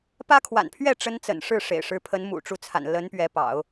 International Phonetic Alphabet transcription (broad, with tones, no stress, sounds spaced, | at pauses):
p ä˥ kʰ w a̰˨˩ n pʰ ɥ ɛ˥˩ ʈ͡ʂ ə˥ n t͡s ə̰˨˩ n ʂ ɻ̩˥˩ ʂ ḛ˨˩ ɪ̯ ʂ ɻ̩˧˥ pʰ ə˧˥ n m ṵ˨˩ ʈ͡ʂ u˧˥ t͡sʰ a̰˨˩ n l ə˧˥ n p ɥ ɛ˧˥ p ɑ̰˨˩˦ ʊ̯